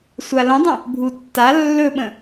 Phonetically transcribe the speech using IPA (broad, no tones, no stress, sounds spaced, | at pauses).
sʷ a l ə̃ dˤ ə̃ | bʱ u tː a lː ɵ ɓ ə̃